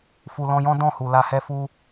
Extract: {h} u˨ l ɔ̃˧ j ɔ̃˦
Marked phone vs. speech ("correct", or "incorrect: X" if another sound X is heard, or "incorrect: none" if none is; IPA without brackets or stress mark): incorrect: f